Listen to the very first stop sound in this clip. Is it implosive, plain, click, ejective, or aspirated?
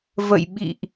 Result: implosive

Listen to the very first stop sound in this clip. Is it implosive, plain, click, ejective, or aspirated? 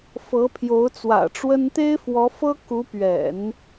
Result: aspirated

